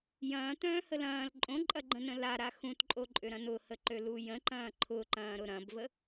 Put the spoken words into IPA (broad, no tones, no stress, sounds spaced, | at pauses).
j ɐ̃ː t̪ œ̃ː h ə l ɐ̃ː l ǃʼ õ ǃʼ ɐ ɡ͡ǃ ə̃ n ə̃ l a ɾ a x ũ t ǃʼ o ǃʼ ʏ ɾ ɐ̃ n ʊ h ə ǃ ø l u j ə̃ ǃ ɐ̃ː ǃʰ ʊ ǃ ɐ̃ː ɾ ʊ ɾ ɐ̃ b v ə